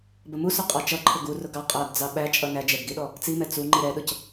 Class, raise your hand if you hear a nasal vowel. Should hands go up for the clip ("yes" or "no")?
no